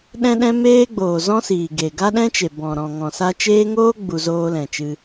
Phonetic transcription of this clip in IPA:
ɗ ɛ̃˦ ɗ ɛ̃˦ m eː˦ ɡ͡b oː˨ z ɔ̃˦ s iː˨ ɡ e˨ ɡ a˦ ɗ ɛ̃˦ t͡ʃ e˨ b ɔ̃˨ ɾ ɔ̃˨ ŋ ɔ̃˨ s a˧ t͡ʃ eː˦ ŋ oː˦ ɡ͡b u˧ z oː˦ l ɛ̃˨ t͡ʃ ɨ˧

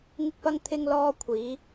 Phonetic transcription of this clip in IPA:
ŋ ɪ˥ k̚ p ɐ˥ ŋ t̪ʰ ɪ˥ ŋ l ɔː˥ kʷʰ iː˨˥

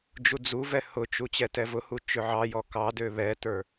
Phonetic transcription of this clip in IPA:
d͡ʒ u d͡z u v ɛ h ʊ t͡ʃ u t͡ɕ ɛ t ɛ v ʊ h u t͡ʃ ø ʕ ɑ j ɔ k ɑ d ø β ɛ t ə˞

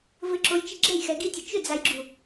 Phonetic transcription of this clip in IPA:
v ɘ ǁ o j t͡ʃ i ɡ͡ǁ ɛ j x ɛ ɡ i tʲ ɘ t͡ʃ ʏ d͡z a j ɡ͡ǁ u

